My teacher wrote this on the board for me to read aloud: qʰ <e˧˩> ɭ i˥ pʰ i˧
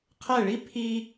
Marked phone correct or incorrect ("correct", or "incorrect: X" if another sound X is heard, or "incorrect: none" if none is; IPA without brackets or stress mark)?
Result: incorrect: ɛ˧˩